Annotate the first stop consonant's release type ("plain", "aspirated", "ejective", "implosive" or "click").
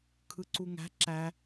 aspirated